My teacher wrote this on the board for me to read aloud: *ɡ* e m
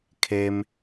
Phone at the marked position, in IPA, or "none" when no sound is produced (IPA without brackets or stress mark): kʰ